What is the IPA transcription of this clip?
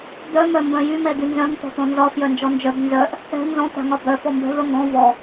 d̪œ mœmbœ̃jy mɛd̪ynzœ̃ŋ t̪ɔ̤t̪ɔ̃nzɒ fjœnd͡ʒɔnd͡ʒœb nzœʔ | ɛ̤ nzɔ̃ t̪a̤ŋɒbœ fɔmbɛ̤vœŋɡɔ̃ vɔ

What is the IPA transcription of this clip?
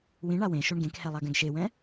wĩɳa wẽ ʃoɳɡẽkhɛ lˠaɡɛ̃ɡʃewɛ̃

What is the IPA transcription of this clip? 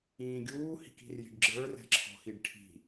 ĩːɡʲuː hi̤ki̤rji̤ɖɡ͡ǁə˞ rɛ̤ǁʰɔ̤xiɖʈʰi̤

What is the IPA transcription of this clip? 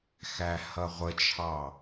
xæhʌʁʷət͡ʃʰɑ

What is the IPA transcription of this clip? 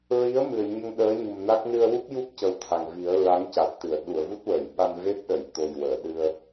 ɹi˧˥ə̯mɨ˨˩ə̯ ɲə˧ŋ ɗəː˧˥ɲu˨˩mna˦˥k̚ nɨ˧ə̯wu˦˥p̚ju˦˥p̚ cə˧˥wt̪ʰa˨˩ŋvi˨˩˦ə̯ ɹa˧˥ŋca˨˩t̚t̪ɨ˨˩˨ə̯ ɗu˨˩˨ə̯vu˦˥t̚wəː˨˩˨jɓa˧n ve˦˥p̚ɗə˨˩˨jt̪o˨˩j wəː˨˩˨ɗɨ˧ə̯

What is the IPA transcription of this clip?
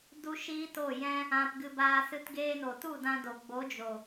du˦ʃiː˦to˦˨jɛ̃˦ | ã˧pɡɨ˧ baː˧sɨ˧t ɡeː˧no˨tu˦˨ dã˧do˨ ɡ͡bo˨˦d͡ʒo˨

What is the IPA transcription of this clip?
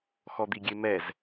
xɔd̪iɡʲemɛz

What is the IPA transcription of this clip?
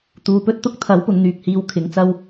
t̪uː˨pɵ˥t̚t̪ʊ˥k̚ t̪ʰɐ˨˥wpʊ˨ŋ n̪yː˧k̚hiː˧w kʰɪ˨˥ŋt͡sɐ˥w

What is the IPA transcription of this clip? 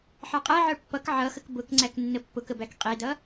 ħɑqʼæʕə˞ pːʌk ʕʌxək bʊkŋ͡ǀæk nːəpːʊkə bækqʼidʌ

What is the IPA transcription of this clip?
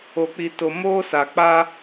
o˨k͡pi˨ to˨ moː˦sa˨ k͡pa˦

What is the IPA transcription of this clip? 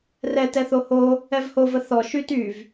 rɛtɛθo ho | ɛvhovə θɔ ʃyt yv

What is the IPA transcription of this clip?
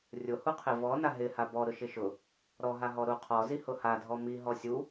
rʲʊhuqʰɪ vɔna ɦɪ habɔ ɾʊʃɪʃʊ | ɾɔɦaɦɔ ɾuqʰɔzi hʊha dʱɔmi ɦɔsʲu

